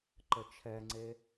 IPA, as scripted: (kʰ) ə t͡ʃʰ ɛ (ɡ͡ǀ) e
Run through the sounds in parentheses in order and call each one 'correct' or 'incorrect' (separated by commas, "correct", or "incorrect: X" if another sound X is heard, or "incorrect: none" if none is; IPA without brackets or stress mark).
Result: incorrect: ǃ, incorrect: ŋ͡ǀ